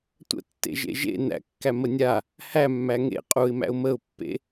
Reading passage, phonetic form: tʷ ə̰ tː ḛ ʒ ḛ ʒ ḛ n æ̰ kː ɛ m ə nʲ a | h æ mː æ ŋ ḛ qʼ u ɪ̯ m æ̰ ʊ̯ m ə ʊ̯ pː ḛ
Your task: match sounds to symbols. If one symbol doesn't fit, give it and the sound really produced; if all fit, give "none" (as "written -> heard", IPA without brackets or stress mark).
ɛ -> æ